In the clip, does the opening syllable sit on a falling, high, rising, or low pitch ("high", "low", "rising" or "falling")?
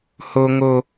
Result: high